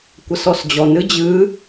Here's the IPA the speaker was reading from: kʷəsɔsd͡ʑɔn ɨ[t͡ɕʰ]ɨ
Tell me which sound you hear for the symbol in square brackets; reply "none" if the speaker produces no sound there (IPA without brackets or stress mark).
d͡ʑ